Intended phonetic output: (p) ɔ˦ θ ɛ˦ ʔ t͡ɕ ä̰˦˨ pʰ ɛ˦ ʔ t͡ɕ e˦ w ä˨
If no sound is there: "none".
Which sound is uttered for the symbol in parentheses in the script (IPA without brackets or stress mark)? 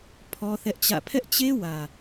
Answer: pʰ